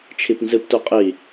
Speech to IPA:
t͡ʃʰipnzɨptu qʼi

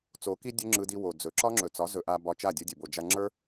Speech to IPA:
t͡so˨˦ki˦ dʲɵ˦ŋ͡ǁɯ˧di˧ wo˨d͡zɵ˨˦ ǁɒ˦ŋ͡ǁɵ˨t͡sɒ˨˦ zɵ˧ʔa˧ bɒ˧t͡ʃa˦˨dʲɯ˧dʲɵ˨ bo˨d͡ʒa˧ŋ͡ǁə˞˦

